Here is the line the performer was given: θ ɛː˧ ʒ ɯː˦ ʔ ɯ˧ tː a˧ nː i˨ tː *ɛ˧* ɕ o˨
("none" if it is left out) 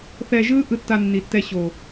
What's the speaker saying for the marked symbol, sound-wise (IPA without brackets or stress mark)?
ɛ˧